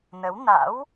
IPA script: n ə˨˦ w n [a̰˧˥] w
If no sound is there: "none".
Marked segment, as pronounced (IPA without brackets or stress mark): a̰˧˥